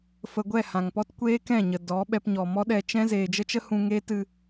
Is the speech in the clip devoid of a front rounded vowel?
yes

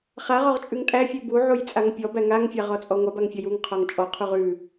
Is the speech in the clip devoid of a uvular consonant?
no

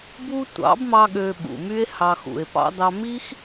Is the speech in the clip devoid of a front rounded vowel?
no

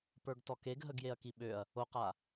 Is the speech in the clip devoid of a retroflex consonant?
yes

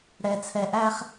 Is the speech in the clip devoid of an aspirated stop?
no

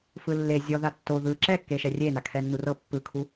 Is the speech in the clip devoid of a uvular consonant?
yes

